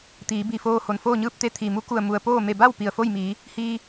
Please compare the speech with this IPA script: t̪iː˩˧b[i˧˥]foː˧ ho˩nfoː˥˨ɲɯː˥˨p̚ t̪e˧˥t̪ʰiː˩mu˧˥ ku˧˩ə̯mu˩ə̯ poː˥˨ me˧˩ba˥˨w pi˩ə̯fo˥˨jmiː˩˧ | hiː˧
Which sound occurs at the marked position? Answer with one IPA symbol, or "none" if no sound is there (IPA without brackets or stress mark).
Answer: i˧˩